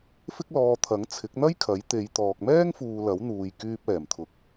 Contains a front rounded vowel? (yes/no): yes